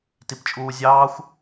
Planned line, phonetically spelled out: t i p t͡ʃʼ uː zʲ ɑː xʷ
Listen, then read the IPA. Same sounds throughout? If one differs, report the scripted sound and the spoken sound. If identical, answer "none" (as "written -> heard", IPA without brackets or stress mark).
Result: none